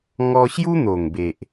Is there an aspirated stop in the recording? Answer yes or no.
no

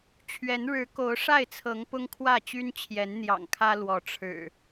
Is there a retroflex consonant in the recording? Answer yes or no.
yes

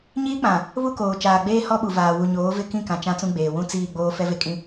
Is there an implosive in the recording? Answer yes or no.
yes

